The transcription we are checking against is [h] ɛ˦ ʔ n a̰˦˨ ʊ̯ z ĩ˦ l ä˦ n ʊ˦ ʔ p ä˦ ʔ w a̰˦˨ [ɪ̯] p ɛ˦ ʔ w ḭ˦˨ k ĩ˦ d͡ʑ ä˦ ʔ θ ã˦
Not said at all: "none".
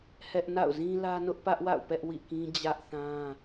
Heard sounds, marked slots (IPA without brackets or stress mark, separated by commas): h, ʊ̯